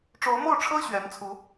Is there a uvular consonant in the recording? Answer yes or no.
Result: no